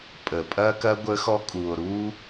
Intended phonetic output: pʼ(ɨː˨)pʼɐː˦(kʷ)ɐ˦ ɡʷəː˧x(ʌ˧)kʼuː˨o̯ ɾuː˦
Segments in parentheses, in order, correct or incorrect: incorrect, incorrect, incorrect

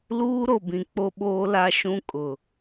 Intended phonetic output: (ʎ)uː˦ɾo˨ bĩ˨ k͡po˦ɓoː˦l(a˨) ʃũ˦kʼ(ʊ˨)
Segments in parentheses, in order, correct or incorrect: incorrect, incorrect, correct

